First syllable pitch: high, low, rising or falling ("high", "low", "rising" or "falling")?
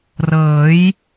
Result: rising